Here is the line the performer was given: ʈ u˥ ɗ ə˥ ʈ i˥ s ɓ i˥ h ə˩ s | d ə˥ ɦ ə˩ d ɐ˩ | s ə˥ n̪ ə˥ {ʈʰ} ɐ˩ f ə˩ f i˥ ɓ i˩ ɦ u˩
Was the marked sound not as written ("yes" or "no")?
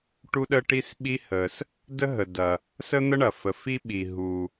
yes